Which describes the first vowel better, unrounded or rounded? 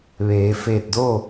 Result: unrounded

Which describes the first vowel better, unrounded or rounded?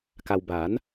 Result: unrounded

